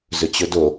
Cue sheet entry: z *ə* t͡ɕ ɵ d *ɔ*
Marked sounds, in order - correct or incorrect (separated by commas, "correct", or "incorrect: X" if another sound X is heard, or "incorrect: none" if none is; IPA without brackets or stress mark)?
incorrect: ɵ, incorrect: o